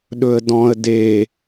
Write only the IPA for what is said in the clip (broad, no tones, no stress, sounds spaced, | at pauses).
ɗ ɵ ə̯ d ɔ̃ ə̯ d e